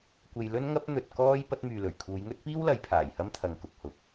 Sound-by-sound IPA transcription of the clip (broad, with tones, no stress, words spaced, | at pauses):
kʷe˧jlɵ˥nŋɐ˥p̚ n̪ɵ˧t̚kɔː˥j pɐ˨˥t̚myː˨lɵ˨˩ɥkʰuː˨˧j ŋɵ˥t̚piː˥wlɐ˨˧j pʰaː˨˩jhɐ˥mt̪ʰɐ˨ŋ kʊ˨k̚hʊ˨k̚